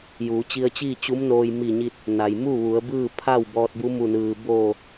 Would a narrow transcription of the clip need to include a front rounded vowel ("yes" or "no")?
no